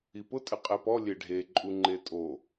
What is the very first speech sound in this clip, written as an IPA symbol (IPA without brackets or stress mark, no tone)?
i